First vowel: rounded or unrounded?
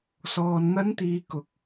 rounded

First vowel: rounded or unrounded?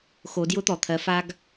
rounded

